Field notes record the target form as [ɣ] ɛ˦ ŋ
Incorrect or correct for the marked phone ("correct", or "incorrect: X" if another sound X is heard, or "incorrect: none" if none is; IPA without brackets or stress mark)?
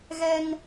correct